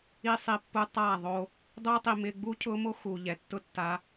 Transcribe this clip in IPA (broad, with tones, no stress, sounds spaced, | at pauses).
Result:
i˦ sˤ i˧ pː u˦ tˤ a˦˨ ðˤ o˧ | dˤ ʊː˦ tˤ i˨ m ɪː˧ ɡ͡b u˦ cʰ ʊː˦ m o˦ x uː˨ ʎ ɛ˨ tː ʊ˦ tː a˧